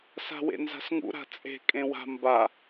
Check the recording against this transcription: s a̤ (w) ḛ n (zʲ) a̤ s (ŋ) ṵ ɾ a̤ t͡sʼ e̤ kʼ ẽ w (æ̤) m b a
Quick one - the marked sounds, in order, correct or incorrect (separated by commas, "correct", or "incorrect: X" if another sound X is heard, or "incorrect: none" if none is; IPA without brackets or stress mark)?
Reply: correct, incorrect: z, correct, incorrect: a̤